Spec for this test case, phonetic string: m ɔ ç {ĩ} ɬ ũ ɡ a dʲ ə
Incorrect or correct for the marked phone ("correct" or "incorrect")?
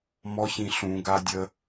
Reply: correct